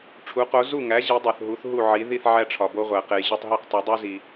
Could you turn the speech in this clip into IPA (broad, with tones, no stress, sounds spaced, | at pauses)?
ʈ͡ʂʰ u˩˥ q o˩˥ z u˥˩ ŋ æ˩˥ ʑ i˩˥ dˤ o˩ θ ɦ u˩˥ θ ɦ u˥˩ ʕ i˩˥ ð i˥˩ θ ʕ æ˥ ʈ͡ʂʰ ɒ˩ b o˥ ʁʷ æ˩ q e˩ j ʑ u˥˩ tˤ ɦ e˥˩ q tˤ o˩˥ dˤ u˥ z i˩